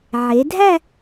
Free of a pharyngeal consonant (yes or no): no